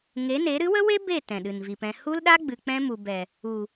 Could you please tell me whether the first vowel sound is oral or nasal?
oral